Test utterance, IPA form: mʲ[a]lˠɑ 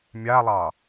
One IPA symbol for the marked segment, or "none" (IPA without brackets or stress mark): a